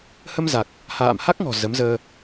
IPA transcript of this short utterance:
h ə˧ m z a˨˩ k̚ | h a̰ː˧˨ m h a˦˥ k̚ ŋ ɔ̤˨˩ z ə˨˦ m z əː˧

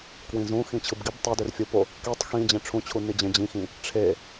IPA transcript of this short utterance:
k w ĩ z ũ x ĩ t͡ɕʰ ɯ b ɡ i b tˤ e d ø r fʲ u p o | k i tˤ x ĩ d͡ʑ ẽ ʈ͡ʂʰ ũ t͡ɕʰ u n i d͡ʑ ẽ d͡ʑ ĩ x ĩ | ʈ͡ʂʰ e

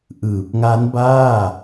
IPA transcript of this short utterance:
ʔ ɯː˨˩ p̚ ŋ a˦˥ n b aː˥˩

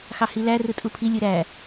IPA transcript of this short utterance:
x ɑ h i l æ r ɯ tʼ u pʰ i lʲ ɯ ɾ æ

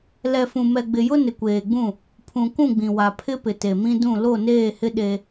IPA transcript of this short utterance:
l ɛ˨ f ũ˨ m ɛ˨ ɡ͡b ɪ˨ j ʊ˦ n ɪ˨ kʷ eː˨ ɡ͡b ũ˦˨ | pʰ ũ˨ k ũ˦˨ ɡ͡b ĩ˨ w a˨ pʰ ɪ˦ p ɪ˨ t e˨ m ĩ˦ d ũ˦˨ l o˦˨ n eː˦˨ h ɪ˦ ɗ e˦

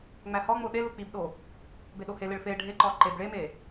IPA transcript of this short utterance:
ŋ͡m æ h ɒ ŋ͡m o ɗ e l u k͡p i b ɗ o | b e ɗ o h e l e ɭ f e ɖʱ e ǃ ɒ ǃ e b ɭ e m e

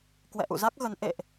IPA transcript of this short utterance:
k w ɛ̰˧˨ ʔ ṵ˧˨ z a˦˥ k̚ ɣ ə˨˦ n ʔ ḛ˧˨ ʔ

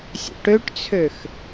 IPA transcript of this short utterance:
sʲ ə̰ ʈ ø ʈ t͡sʰ ø x

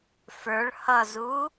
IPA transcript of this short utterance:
f ə˞ ɭ h ʌ z uː

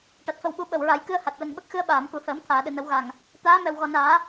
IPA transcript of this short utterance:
ʈ a˨˩ t̚ f ə˨˩ w ɓ u˨˩˦ ɓ ə˨˩ w ɹ a˨˩˦ j k ɨ˧ ə̯ h a˨˩ t̚ l ə˨˩ ŋ ɓ ə˦˥ k̚ x ɨ˧ ə̯ ɓ aː˨˩˨ m k u˨˩˨ h əː˨˩˦ m t̪ʰ aː˨˩˨ ɗ ɨ˨˩˨ n ə˨˩˦ w ɣ a˨˩ ŋ | t̪ aː˧˥ m ɛ˨˩ w ɣ ɔ˨˩ n aː˨˩˦

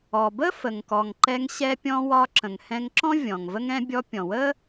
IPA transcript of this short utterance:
ɔ˩ b ə˥ f ə˩ ŋ k ɔ˩ ŋ ǃ ɛ˧ ŋ ɕ ɛ˧ pʲ ɔ̃˧ w ɒ˧ ǁ ə̃˩ ŋ h ɛ̃˧ ŋ ǁ ɔ̃˥ vʲ ɔ̃˩ ŋ v ə˥ ŋ ɛ̃˧ bʲ ɔ˧ pʲ ɔ̃˩ w ə˥

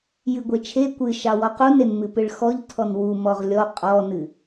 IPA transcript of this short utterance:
j ɨ ɡʷ e t͡ʃʰ e kʷ ɨ ʃ ɑ w ɔ q u n e n m ɨ p ɨ ɭ x ɔ ʎ tʰ ɔ n w u m ɔ ʁ lʲ ɔ qʼ ɔ n ɨ

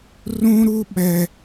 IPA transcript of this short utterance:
r ũ˦ ɾ u˦ ɓ ɛ˦

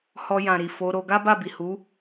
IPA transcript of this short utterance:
h ɔ˧ j ã˨ ɾ i˨ f o˨˦ ɾ o˧ ɡ a˦ b a˦˨ b i˨ h u˨˦

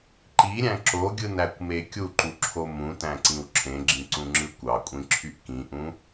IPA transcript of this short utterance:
ǃ i ɾʲ æ̃ ǁ o ɡʲ ɯ n æ kʷ m e kʲ u ǃ u ǁʰ o m ũ t æ̃ ǀ ĩ w ǁʰ ẽ ɡ͡ǁ ĩ ǀ ũ ŋ͡ǁ ɯ kʷ ɑ kʷʼ ĩ ǁʰ y ʔ k ĩ ʔ ũ

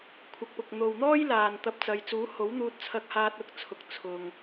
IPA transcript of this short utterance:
kʷʰ ɐ˨ k̚ p ʊ˨ k̚ n̪ o˨ w n̪ ɔː˥ j l aː˨ n t̪ ɐ˧ p̚ t͡s ɐ˨˧ j t͡s uː˨˥ h o˨˥ w n̪ uː˧ t̚ t͡sʰ ɐ˧ k̚ h aː˧ t̚ ʊ˧ k̚ t͡sʰ ʊ˨ k̚ t͡sʰ ʊ˨ ŋ

